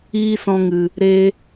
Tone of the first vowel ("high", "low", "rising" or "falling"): high